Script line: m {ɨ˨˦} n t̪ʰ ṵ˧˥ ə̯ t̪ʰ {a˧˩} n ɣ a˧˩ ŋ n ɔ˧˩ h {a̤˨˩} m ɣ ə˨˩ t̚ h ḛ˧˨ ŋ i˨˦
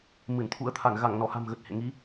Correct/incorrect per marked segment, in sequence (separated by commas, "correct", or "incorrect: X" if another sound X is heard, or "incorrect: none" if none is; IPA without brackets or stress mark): incorrect: ɨ˧˩, correct, correct